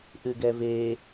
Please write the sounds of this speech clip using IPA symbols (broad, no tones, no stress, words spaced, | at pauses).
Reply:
ʔʉɡɛve